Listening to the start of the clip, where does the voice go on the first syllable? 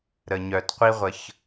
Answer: low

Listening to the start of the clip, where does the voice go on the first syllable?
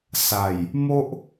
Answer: low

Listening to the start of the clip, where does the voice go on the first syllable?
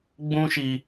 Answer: high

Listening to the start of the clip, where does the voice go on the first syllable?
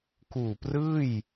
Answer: low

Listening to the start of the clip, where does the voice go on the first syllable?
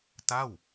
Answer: falling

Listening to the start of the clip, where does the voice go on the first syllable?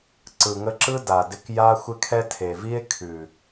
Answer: low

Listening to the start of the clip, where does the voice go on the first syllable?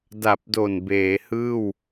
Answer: low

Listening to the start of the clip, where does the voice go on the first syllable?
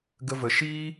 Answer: high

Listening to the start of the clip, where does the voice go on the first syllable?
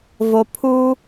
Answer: low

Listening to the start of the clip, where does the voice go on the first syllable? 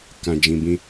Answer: low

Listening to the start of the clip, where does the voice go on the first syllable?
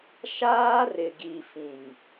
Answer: high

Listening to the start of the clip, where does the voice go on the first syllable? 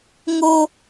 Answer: high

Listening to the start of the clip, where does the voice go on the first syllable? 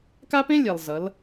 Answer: high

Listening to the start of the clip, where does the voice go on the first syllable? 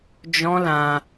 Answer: high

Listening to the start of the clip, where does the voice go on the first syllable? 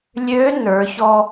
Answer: rising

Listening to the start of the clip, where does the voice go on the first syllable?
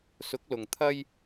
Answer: rising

